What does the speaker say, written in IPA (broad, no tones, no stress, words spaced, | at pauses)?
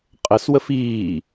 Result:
qʼəswəf iː